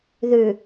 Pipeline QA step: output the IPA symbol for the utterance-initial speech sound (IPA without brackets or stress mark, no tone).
ð